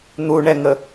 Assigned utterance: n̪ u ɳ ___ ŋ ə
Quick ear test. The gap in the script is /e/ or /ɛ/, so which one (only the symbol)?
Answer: ɛ